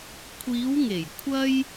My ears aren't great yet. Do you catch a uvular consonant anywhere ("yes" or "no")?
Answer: no